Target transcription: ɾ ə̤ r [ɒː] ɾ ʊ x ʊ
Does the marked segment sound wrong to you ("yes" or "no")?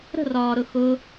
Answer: no